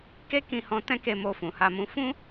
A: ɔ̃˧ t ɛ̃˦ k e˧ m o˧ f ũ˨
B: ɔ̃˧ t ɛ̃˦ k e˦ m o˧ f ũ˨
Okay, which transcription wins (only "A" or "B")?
A